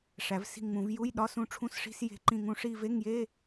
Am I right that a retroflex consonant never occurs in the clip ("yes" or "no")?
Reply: no